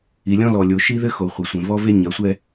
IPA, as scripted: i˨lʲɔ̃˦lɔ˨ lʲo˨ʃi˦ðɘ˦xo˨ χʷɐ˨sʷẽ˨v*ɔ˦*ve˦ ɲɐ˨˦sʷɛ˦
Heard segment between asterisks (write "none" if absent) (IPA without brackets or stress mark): ɔ˦